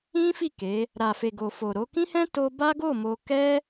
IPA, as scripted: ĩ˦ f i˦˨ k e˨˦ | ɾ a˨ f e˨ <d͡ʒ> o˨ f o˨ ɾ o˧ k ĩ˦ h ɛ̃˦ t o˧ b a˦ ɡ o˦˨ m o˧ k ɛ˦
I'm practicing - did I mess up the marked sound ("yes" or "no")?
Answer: yes